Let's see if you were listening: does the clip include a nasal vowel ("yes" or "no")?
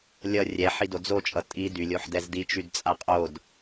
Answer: no